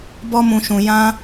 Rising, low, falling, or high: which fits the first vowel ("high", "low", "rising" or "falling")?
high